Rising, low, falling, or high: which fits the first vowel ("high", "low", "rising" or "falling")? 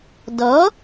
rising